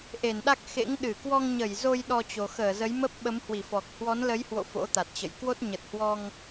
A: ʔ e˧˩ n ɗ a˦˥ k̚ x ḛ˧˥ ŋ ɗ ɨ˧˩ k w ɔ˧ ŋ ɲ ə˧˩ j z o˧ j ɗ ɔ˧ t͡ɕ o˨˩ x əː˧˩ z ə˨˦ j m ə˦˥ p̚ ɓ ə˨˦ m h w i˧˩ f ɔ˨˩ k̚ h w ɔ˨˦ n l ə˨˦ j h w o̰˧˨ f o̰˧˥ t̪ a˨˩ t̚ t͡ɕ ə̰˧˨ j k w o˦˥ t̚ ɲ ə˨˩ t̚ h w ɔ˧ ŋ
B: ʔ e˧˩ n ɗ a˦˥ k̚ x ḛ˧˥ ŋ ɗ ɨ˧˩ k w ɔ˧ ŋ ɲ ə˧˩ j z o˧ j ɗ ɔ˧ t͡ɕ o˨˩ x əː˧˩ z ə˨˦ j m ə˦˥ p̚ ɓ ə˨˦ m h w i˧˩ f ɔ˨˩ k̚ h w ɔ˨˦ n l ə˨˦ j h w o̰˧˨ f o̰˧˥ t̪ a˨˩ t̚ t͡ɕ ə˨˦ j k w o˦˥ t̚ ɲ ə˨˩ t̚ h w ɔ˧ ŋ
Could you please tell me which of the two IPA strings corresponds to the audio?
A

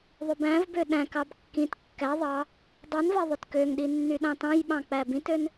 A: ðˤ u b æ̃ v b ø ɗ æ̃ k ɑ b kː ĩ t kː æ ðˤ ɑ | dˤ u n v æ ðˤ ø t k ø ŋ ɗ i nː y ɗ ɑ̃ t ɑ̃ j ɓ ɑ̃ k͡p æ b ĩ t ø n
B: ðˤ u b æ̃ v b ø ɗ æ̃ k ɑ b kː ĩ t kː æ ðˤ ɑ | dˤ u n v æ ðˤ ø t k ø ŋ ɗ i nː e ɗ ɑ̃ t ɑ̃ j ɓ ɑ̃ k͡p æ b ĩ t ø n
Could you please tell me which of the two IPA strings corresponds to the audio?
A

